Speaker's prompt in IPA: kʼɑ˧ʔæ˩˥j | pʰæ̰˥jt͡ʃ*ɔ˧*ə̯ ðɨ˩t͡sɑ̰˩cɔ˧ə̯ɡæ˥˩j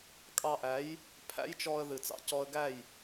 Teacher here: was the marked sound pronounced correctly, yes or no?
yes